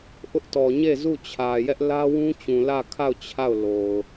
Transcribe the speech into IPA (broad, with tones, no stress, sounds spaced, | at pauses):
ʔ ʊ˦ ʔ t ɔ˨ ɲ e˦˨ z u˦˨ t͡ɕʰ ä˨ j ɛ˦ ʔ l ä˦ w ũ˦ t͡ɕ ũ˨ l ä˦˨ kʰ a˦˨ ʊ̯ t͡ɕʰ a˦˨ ʊ̯ l o˨ ʊ̯